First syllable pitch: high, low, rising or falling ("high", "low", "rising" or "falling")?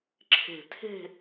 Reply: low